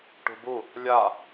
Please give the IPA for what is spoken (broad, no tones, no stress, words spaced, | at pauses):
ʈṳbu | lʲa